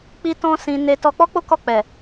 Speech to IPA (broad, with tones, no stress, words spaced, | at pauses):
k͡pi˦tɔ̃˦sĩ˧ ne˧ tɔ˧k͡pɔ˦k͡po˦ kɔ˦˨k͡pɛ˨